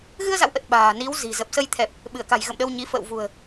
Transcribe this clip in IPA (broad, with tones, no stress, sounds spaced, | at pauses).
ɣ ɨ˧ ə̯ z a̰˧˨ w ʔ ə˨˩ t̚ ɓ a̤ː˨˩ n i˨˦ w z i̤˨˩ z ə˨˩ p̚ s ə˧ j t̪ʰ ɛ˨˩ p̚ | ɓ ɨ˧˩ ə̯ k a̤˨˩ j ɣ ə̰˧˨ m ɗ ə˧ w ɲ i˨˦ f ə̰ː˧˨ w v ṳ˨˩ ə̯